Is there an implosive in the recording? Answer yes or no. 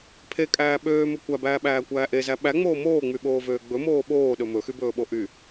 yes